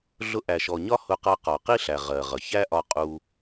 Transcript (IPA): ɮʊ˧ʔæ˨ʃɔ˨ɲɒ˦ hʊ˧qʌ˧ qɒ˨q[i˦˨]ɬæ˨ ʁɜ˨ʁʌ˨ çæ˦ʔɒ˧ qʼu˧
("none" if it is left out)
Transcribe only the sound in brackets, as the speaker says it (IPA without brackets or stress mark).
i˦